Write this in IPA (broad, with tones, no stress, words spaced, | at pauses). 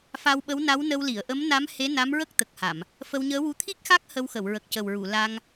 fa˧wɓə˧˥wna˧˥wnə˧w li˨˩˨ə̯ʔə˧˥mna˧˥mhe˧˥ na˧˥mɹə˦˥k̚ t̪ə˨˩k̚ha˨˩˨m | fə˧wɲəː˧˥wu˧ t̪ʰi˦˥k̚xa˦˥k̚ hə˧wxə˨˩˨w ɹə˨˩k̚cə˨˩wɹu˨˩˨ la˧ŋ